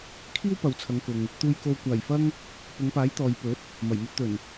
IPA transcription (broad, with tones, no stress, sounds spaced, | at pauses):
kʰ iː˥ w p ɐ˨ w t͡sʰ ɐ˨˧ ŋ k ʊ˨ ŋ | t̪ uː˨ j k o˨ w kʷ aː˨˩ j f ɐ˧ ŋ | p ʊ˨˧ ŋ p aː˨˥ j t̪ ɔː˨ j p ɵ˨˥ t̚ | m ɐ˨˩ j m ɵ˧ t̚ t̪ ɵ˨˩ n